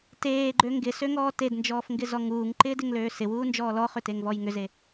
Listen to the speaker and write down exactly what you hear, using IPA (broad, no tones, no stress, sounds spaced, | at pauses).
t eː ɡ͡ǃ ø ŋ ɡ ɪ s ø ŋ ɔː t e d n d͡ʒ ɔː f ŋ ɡ ɪ z ɔ ŋ uː ŋ ǃ ɪː d ɪ ŋ l øː s ɪ w uː n d͡ʒ ɔː l ɔ χ ʏ t e ŋ v ɔ j ŋ ʏ z e